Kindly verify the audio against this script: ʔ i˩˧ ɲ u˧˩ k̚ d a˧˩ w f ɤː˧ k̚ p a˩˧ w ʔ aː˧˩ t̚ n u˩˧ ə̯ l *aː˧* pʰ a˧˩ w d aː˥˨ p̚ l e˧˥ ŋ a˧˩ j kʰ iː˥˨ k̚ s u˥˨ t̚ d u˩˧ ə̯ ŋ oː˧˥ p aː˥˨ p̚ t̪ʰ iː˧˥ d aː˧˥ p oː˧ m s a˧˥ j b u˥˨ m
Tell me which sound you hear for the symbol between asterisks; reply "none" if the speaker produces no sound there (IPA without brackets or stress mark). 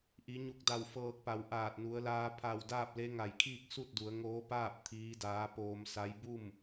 aː˧